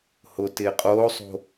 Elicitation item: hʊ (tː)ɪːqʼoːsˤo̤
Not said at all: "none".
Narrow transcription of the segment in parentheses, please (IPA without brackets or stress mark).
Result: t